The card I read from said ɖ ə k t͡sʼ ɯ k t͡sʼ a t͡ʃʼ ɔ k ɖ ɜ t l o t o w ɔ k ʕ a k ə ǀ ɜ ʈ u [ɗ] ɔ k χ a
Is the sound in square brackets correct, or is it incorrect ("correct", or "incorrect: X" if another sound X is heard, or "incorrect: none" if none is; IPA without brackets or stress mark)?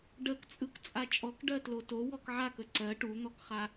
incorrect: n̪